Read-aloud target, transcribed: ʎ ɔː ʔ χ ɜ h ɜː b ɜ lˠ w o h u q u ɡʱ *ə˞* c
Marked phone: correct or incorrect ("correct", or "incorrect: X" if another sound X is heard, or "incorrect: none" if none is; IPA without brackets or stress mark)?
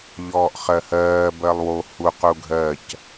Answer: incorrect: ɜ